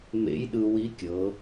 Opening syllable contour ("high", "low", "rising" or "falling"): rising